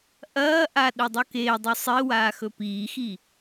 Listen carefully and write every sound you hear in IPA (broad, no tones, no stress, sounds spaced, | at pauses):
ʔ ɐː ʔ a ɗ ɵ dˤ u k eː dˤ u sˤ i w aː x ɵ p iː x i